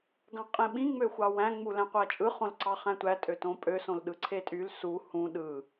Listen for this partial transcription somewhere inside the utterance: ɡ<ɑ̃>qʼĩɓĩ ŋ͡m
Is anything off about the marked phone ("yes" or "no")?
no